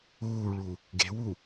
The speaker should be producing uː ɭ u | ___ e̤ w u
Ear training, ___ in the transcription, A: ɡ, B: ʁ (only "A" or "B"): A